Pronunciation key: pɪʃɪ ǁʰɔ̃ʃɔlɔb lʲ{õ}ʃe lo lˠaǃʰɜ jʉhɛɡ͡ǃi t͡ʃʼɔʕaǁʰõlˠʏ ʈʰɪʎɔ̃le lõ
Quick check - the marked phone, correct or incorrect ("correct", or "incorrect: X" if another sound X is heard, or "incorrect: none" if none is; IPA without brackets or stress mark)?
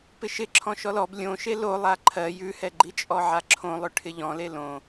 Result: correct